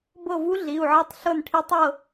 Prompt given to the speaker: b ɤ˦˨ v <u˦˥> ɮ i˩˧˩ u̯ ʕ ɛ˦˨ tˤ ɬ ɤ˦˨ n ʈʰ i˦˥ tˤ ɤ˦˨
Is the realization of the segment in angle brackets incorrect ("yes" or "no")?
no